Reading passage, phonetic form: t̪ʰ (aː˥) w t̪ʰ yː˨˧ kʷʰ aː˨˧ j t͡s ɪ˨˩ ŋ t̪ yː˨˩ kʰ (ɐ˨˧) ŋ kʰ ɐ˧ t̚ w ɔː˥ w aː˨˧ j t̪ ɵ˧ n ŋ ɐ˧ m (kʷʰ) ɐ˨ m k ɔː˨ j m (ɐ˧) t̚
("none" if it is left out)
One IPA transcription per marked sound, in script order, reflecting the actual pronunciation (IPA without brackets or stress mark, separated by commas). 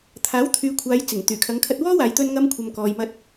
aː˨˥, ɐ˨˧, kʷʰ, ɐ˧